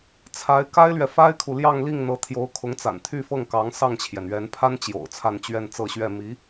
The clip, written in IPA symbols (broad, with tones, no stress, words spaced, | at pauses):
t͡sʰa˧˥ɪ̯ka˥ɪ̯lɥɛ˨ fa˥ɪ̯kʰu˨ ljɑ˥˧ŋli˥˩ŋ n̪ɤ˧˥t̪ʰjo˧˥ʊ̯kʰʊ˧˥ŋ t͡sa̰˨˩nt̪ʰy˥˧ fɤ˥˩ŋ kɑ˧˥ŋsɑ˥˩ŋt͡ɕʰjɛ˩n ɥɛ˧˥npʰa˥nt͡ɕjo̰˨˩ʊ̯ t͡sʰa˥˧nt͡ɕɥɛ˥˧nt͡sɤ˥˧ɕɥɛ˥˩ mi˧˥